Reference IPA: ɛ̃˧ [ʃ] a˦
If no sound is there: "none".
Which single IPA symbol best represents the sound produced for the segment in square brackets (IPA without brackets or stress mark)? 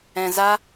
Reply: z